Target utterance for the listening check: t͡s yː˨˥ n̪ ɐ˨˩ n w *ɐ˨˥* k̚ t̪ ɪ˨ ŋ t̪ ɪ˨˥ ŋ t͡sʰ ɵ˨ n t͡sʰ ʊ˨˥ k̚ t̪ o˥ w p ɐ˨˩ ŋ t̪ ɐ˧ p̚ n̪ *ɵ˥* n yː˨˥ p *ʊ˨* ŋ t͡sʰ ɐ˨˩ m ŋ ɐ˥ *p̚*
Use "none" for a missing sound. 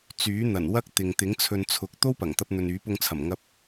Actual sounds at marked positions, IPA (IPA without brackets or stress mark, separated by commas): ɐ˥, ɵ˨, ʊ˧, p̚